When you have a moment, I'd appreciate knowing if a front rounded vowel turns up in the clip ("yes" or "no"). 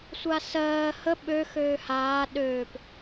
yes